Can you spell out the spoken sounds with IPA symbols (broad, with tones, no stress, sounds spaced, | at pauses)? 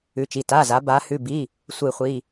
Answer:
ʉ˩˧˩ t͡ʃ i˩˧˩ t a˩˧˩ z a˩˧ b a˩˧ h ʉ˩˧˩ b i˩˧˩ | sʷ ɨ˧˩˧ χʷ i˩˧˩